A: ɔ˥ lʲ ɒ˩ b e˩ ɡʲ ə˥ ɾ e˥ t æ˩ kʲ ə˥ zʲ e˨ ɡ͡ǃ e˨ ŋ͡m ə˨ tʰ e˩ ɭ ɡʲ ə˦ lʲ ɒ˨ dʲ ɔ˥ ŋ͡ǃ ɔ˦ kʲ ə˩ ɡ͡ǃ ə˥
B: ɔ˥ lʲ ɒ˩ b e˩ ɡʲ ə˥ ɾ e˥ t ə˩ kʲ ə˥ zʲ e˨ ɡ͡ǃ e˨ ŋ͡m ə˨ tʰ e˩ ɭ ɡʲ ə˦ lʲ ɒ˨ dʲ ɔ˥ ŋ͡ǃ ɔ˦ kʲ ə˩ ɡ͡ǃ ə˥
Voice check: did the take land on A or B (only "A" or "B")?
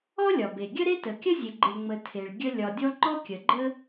B